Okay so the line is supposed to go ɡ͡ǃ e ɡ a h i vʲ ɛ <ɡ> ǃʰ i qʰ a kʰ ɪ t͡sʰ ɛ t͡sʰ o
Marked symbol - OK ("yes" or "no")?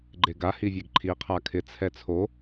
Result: yes